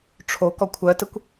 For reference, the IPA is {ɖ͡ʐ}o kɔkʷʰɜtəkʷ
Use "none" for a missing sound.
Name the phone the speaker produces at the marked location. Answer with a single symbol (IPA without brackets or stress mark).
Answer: ʈ͡ʂʰ